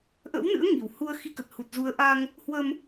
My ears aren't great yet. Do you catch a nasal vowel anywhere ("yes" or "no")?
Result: no